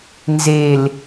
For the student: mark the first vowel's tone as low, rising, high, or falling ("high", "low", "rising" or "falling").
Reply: low